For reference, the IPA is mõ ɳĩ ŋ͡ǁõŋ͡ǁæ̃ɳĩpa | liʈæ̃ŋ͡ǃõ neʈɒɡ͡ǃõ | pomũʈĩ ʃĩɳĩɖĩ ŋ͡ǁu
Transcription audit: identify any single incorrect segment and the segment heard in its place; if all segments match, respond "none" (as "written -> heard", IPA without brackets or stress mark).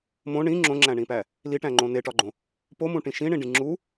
a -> æ